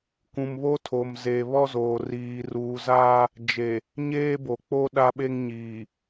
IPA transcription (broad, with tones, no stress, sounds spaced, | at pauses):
k ũ˨ m β o˦ tʰ o˨ m z e˨ β ɔ˦ z oː˨ r iː˨ r uː˨ z aː˦ | d͡ʒ e˨ | ɲ eː˦ b o˨ k͡p o˦ ɗ a˦ ɓ e˦ ŋ ɲ iː˨